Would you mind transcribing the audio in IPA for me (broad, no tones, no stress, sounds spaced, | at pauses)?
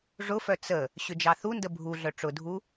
ʐ ʊ f œ t͡s ə | ɕ ʏ d͡ʒ ɑ θ u n d ə bʱ u ɮ œ ʈ͡ʂ ʊ dʱ u